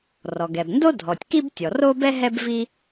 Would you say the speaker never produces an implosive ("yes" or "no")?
yes